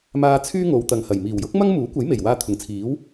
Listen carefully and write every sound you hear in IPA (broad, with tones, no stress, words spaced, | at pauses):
maː˧t͡sʰyː˥ŋo˨˧w t̪ɐ˨ŋhɐ˨˩j miː˨˩wjʊ˥k̚ mɐ˥ŋmuː˨˥kʷɐ˨˥jme˨˩j waː˥t̪ʰʊ˨ŋ t͡sʰiː˨˥w